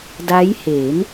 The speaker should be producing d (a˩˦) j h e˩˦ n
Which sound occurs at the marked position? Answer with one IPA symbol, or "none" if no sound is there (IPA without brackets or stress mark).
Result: a˦˥